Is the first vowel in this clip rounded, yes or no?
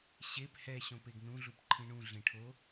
no